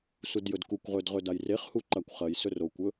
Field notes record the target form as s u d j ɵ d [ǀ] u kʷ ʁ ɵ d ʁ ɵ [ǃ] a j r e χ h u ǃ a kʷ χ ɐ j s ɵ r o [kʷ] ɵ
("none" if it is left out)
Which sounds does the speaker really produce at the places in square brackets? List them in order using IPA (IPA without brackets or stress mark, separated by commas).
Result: k, d, kʷ